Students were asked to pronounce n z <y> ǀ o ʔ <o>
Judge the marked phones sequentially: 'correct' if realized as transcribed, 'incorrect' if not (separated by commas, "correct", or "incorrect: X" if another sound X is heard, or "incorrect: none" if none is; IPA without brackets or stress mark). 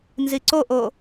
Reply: incorrect: i, correct